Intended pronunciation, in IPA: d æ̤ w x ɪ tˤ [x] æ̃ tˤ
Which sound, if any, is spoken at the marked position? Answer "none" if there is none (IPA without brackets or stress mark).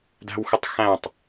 x